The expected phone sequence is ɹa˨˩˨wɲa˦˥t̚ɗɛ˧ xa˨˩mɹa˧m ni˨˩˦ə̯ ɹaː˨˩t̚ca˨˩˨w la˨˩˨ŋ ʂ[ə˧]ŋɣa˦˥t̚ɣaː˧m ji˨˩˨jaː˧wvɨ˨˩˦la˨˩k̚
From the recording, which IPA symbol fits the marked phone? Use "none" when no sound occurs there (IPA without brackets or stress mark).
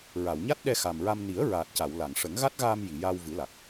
ə˨˩˦